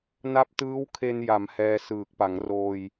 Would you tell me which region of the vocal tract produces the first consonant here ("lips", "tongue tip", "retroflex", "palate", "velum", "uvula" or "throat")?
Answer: tongue tip